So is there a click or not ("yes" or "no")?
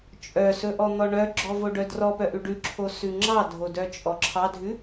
yes